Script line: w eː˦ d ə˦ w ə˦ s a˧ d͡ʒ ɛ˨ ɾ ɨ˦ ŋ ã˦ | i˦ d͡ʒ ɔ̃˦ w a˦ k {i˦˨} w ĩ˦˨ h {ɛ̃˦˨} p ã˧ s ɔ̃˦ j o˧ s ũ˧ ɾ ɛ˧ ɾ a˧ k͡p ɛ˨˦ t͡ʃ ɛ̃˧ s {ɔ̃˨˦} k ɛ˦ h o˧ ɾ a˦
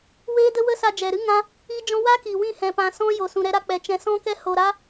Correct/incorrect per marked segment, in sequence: incorrect, incorrect, incorrect

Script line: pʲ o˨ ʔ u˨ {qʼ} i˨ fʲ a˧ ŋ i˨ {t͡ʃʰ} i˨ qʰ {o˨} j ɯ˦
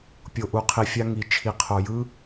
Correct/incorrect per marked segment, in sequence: incorrect, correct, correct

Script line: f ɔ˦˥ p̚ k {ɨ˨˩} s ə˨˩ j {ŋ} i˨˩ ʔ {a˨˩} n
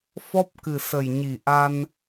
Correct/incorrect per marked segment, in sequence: correct, incorrect, incorrect

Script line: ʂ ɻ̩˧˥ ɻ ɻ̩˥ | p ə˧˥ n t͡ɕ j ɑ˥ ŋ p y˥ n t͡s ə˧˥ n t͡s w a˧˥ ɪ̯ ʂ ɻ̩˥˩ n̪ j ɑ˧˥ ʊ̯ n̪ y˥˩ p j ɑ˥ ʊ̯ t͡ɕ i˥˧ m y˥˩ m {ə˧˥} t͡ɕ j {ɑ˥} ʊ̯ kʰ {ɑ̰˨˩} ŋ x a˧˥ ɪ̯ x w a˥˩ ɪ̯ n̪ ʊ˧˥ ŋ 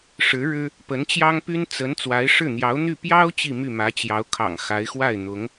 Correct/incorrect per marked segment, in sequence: incorrect, incorrect, correct

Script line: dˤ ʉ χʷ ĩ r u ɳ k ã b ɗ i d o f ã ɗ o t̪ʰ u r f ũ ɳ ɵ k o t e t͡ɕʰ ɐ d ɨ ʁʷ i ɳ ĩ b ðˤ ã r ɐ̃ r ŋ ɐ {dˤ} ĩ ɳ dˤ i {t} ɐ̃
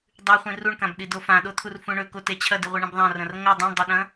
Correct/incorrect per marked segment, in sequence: correct, incorrect

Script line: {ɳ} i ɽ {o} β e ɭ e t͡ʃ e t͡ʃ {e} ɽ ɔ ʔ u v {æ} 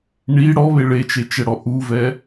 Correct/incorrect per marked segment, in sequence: correct, incorrect, incorrect, incorrect

